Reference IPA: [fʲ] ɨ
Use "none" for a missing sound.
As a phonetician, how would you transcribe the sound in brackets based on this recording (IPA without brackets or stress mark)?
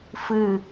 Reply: f